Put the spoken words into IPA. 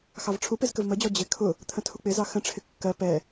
x ɑ v ʈ͡ʂʰ u p ɪ z k ə v m ə d͡ʑ ɔ d͡ʑ ɪ kʰ ʊ | t̪ʰ ə̃ tʰ u k͡p ɪ z ɑ x ə̃ ʈ͡ʂʰ ɪ kː ɜ p ɛ

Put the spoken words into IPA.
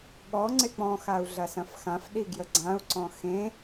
ɠ ɔ ŋ͡ǀ ɪ k͡p ɔ̃ x a u̯ ɮ ɐ s ɐ̃ f x ã f ɗ i ɡ j ə ɡ͡ǀ ã u̯ ǀ ɔ̃ x ẽ

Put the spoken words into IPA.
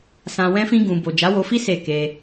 s ã˧ w ɛ̃˦ f ĩ˦ ɡ ũ˧ b o˨ d͡ʒ a˨˦ w o˧ f i˦ s e˦˨ k e˧

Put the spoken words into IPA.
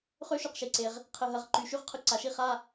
χ ø˦˥ ʃ y˨ q ʃ e˨ ǀ e˨ ʁ | qʰ ə˨ ɦ ɐ˩˥ ʁ ǃ y˩˥ ʃ y˦˥ ʁ qʰ ʊ˦˨ ǀ a˨ ʃ i˦˥ χ a˧˥˧

